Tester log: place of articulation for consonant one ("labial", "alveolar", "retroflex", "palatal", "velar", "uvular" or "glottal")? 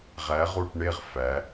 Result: uvular